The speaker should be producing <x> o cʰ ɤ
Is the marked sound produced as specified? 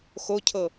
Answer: yes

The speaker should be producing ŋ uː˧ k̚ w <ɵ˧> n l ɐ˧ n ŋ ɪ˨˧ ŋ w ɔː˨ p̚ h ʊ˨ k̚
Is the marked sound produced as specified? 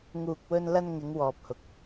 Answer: yes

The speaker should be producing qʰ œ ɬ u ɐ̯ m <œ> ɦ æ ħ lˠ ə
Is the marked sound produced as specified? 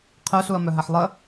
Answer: yes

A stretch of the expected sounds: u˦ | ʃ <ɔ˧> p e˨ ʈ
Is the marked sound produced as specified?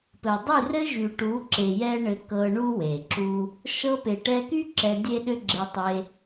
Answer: no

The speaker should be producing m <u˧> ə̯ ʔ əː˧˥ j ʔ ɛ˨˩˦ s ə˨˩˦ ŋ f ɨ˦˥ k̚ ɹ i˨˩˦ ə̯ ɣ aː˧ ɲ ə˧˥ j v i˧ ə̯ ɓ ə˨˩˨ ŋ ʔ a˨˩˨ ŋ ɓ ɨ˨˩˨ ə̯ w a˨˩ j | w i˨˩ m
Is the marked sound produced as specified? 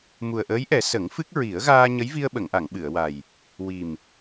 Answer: no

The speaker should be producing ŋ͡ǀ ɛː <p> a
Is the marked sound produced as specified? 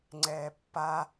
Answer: no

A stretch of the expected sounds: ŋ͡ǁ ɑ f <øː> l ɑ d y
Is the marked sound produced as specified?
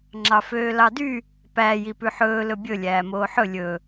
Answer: yes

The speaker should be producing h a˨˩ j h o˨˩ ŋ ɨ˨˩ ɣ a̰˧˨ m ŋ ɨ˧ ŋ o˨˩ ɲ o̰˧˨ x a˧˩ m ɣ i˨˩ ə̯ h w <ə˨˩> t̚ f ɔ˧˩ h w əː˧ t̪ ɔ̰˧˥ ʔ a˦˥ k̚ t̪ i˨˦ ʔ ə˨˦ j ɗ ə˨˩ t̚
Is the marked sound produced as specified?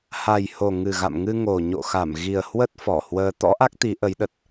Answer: no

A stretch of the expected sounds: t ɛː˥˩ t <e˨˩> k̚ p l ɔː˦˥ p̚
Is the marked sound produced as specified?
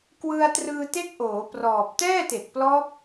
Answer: yes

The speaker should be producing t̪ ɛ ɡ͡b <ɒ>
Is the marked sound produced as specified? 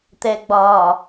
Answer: yes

